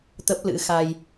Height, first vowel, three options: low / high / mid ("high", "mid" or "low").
mid